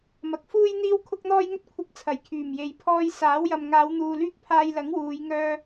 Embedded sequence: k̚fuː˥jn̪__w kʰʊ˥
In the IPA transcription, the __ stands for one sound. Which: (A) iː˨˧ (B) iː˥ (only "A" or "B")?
B